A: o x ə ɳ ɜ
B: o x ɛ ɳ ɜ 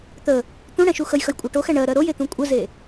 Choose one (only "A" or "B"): B